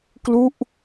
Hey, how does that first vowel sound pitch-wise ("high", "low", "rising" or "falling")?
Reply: falling